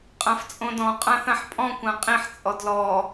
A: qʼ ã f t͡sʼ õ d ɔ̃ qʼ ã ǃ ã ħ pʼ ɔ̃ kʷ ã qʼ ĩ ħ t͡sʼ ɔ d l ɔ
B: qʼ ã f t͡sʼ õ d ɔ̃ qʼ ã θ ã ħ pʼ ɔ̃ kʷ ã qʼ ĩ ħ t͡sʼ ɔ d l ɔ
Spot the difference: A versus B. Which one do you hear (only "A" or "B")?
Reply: B